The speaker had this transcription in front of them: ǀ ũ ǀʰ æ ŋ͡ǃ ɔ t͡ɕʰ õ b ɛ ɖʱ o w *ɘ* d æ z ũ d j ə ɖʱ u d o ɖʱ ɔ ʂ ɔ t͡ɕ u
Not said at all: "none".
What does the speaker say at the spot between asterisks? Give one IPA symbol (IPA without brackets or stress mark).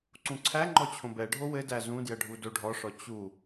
ɘ